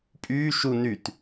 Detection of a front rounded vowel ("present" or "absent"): present